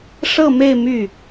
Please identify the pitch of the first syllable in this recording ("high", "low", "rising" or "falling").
falling